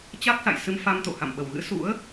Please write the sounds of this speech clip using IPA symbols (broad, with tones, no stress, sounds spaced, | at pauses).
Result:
t͡ɕ a˦˥ k̚ s a̰˧˨ j s ɨ˧ m f a˧ m t̪ o̰˧˨ h a̰˧˨ m ɓ ə˧˩ w ɣ ɨ̰˧˥ s ṵ˧˥ ə̯